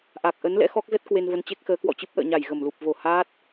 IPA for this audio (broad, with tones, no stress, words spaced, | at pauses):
ʔa˨˩k̚ ʔə˨˦n lɛ̰˧˥xɔ˦˥k̚zə˦˥t̚ kwe˧nvə˨˦nt͡ɕe˦˥k̚xəː˨˦ kwɔ̰˧˨t͡ɕɨ˦˥p̚ ʔə̰ː˧˨ɲa˧˩j ɣə˧˩mlu˨˩p̚ vo˧˩haː˦˥t̚